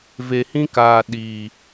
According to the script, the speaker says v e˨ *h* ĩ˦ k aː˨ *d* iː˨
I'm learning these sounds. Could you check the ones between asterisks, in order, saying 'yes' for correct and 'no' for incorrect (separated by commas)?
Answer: yes, no